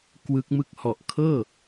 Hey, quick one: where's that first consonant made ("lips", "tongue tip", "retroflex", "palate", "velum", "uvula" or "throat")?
velum